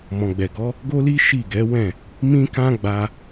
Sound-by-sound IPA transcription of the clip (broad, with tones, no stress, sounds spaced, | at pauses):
m ɔ̃˨ ɡ͡b ɛ˨ ɡ ɔ˨˦ | ɡ o˦ l i˦ ʃ i˦˨ ɡ ɛ˨˦ w ɛ̃˦˨ | m ĩ˦ k ã˦ ɡ͡b a˧